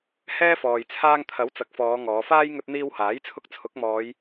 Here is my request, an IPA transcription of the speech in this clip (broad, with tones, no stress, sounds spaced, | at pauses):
h ɛː˥ f ɔː˨ j t͡sʰ aː˧ ŋ t̪ʰ ɐ˨˥ w t͡s ɐ˨ k̚ f ɔː˨˧ ŋ ɔː˨˧ f aː˥ j ŋ ɵ˧ t̚ n̪ iː˧ w h aː˨˥ j t͡sʰ ʊ˧ k̚ t͡sʰ ʊ˨˥ k̚ m ɔː˨˧ j